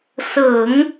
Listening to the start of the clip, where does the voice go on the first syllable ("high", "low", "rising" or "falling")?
low